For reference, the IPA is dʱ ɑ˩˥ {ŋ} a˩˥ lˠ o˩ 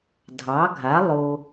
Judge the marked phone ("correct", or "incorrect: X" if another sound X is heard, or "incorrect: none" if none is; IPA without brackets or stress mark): incorrect: ɡʱ